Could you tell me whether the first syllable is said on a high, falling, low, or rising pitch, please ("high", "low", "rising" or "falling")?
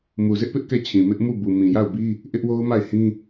low